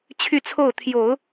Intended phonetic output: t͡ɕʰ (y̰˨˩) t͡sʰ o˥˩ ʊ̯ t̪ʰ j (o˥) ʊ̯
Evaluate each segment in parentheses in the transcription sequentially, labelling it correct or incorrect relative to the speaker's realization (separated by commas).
incorrect, incorrect